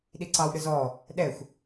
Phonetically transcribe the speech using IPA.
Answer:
ɗ i ǀ ɑ w ɗ ɯ z ɔ | ɗ ɛ xʷ

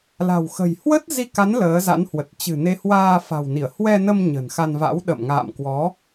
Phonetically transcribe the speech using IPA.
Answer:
l a̤˨˩ w x ə̤˨˩ j h w ə˦˥ t̚ z i˧ k a˨˦ n l əː˨˦ z a̰˧˥ n h w ə˨˩ t̚ t͡ɕ ɨ̤˨˩ n e˨˦ h w aː˧ f a̤˨˩ w n i˧˩ ə̯ h w ɛ˧ n ə˧ m ɲ ə̤˨˩ n x a˧ n v a̰˧˥ w ɗ ə̰˧˨ m ŋ a̰ː˧˨ m k w ɔ˨˦

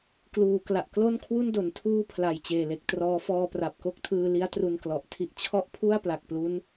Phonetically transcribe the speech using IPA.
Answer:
k l uː˨˩ k l a˨˩ ʔ k l o˥˩ n kʰ w u˥˩ n d o˩˦ n tʰ uː˥˩ pʰ l a˨˩ j t͡ɕ eː˨˩ l e˨˩ k̚ t r ɔː˦˥ f ɔː˧ p r a˨˩ p̚ k o˥˩ k̚ tʰ ɯː˧ l i˦˥ a̯ t r u˧ n k l ɔ˨˩ ʔ tʰ i˦˥ ʔ t͡ɕʰ ɔ˥˩ ʔ pʰ u˥˩ a̯ p l a˨˩ k̚ p l u˦˥ n

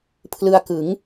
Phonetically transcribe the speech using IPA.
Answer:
pʰ l ɯ˧ a̯ k ɯ˩˦ ŋ

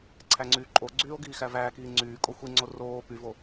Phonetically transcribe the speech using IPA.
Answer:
ǀʰ æ ŋ͡ǀ yː ǃʼ o ɡ͡ǀ yː o̯ ɡ iː x æ v æː k iː ŋ͡ǀ yː kʼ o xʷ i ŋ͡ǀ o r oː p y v o

